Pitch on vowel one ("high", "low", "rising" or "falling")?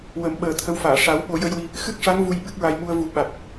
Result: low